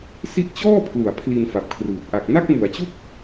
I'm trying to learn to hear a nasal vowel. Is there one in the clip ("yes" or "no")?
no